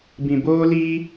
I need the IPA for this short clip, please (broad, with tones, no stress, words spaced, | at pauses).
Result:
bĩ˧boː˦liː˦